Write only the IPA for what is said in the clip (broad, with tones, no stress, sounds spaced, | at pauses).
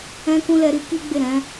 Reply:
ɛ̃˧ k ũ˧ l ɛ˧ ɾ i˦ k i˦ ɡ͡b e˦˨ ɾ ɛ̃˨˦